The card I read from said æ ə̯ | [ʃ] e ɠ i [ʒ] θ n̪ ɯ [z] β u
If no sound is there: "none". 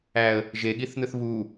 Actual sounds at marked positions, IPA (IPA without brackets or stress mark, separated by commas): ʒ, none, θ